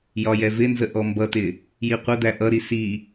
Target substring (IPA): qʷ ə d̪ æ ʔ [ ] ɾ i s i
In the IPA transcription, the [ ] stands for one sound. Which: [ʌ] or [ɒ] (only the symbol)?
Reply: ʌ